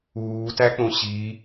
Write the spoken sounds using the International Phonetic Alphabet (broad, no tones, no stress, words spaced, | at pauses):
uːtæk͡põ ɕi